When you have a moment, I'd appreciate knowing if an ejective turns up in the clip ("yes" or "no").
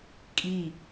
yes